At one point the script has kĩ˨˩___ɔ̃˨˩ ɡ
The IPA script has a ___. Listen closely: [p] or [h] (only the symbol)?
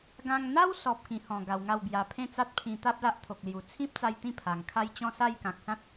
h